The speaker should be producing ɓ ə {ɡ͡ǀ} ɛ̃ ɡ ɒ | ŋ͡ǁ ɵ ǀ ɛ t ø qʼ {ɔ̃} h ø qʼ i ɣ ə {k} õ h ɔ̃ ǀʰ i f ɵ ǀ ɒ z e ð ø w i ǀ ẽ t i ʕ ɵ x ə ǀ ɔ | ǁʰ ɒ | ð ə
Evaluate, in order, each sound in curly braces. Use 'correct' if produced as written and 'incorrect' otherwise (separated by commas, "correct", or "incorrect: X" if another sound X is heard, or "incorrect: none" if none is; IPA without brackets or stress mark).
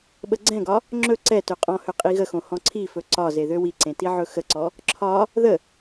correct, correct, incorrect: x